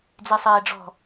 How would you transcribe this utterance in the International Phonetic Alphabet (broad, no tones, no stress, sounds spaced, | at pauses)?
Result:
d͡z e sˤ eː ɖ͡ʐ ɔ̤